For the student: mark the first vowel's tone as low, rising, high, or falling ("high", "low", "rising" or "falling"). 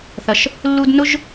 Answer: low